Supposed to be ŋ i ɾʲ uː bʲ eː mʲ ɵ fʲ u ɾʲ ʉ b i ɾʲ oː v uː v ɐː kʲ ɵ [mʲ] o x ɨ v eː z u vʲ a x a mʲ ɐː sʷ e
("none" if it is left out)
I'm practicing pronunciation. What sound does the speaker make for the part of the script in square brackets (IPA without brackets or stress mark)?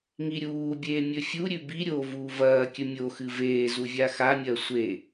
mʲ